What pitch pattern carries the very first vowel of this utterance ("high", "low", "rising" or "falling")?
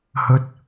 low